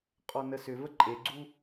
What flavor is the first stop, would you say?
ejective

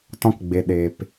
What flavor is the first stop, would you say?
plain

